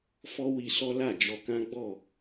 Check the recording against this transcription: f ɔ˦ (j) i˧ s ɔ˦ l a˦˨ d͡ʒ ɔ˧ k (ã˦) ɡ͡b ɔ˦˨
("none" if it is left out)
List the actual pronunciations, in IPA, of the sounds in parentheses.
w, ã˦

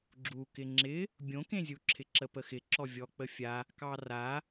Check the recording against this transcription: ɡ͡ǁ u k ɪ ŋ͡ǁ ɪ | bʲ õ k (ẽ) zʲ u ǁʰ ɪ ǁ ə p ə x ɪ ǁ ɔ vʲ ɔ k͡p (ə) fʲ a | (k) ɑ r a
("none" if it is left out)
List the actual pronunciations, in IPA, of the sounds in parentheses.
ẽ, ə, k

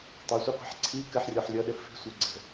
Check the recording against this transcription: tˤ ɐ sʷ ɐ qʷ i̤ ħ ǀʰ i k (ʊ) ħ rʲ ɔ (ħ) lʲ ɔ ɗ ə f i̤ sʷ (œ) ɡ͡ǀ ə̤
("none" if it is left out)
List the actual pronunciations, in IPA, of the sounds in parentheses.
ə, ħ, œ

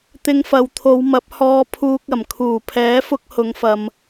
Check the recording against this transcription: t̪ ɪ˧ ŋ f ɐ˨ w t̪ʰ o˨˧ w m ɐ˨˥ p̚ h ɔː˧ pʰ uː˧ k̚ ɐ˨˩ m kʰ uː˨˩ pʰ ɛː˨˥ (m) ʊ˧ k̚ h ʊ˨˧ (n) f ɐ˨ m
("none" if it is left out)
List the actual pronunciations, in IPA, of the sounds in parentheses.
f, ŋ

